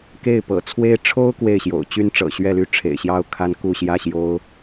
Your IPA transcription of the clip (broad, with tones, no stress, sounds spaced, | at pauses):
k e˥˩ ɪ̯ p ɤ̰˨˩ t͡sʰ w e˥ ɪ̯ ʈ͡ʂʰ o˥ ʊ̯ k w e˥˩ ɪ̯ ɕ j o̰˨˩ ʊ̯ t͡ɕ y˥ n ʈ͡ʂ ɤ̰˨˩ ɕ ɥ ɛ˥˧ l y˥˩ ʈ͡ʂʰ ḛ˨˩ ɪ̯ ɕ j ɑ˥ ʊ̯ kʰ a˥ n k u˥˧ ɕ j ä˥˩ ɕ j o˥ ʊ̯